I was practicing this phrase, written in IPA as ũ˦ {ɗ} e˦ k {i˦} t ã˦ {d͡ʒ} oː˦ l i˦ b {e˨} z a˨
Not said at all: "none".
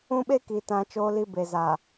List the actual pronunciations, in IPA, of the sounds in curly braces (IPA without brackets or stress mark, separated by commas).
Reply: ɓ, i˨, t͡ʃ, e˨